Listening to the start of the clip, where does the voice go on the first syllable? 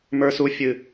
high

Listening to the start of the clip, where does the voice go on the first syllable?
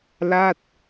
falling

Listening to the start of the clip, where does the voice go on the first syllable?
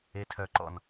high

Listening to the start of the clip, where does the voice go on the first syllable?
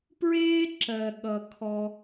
high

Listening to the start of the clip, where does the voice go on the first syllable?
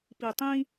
low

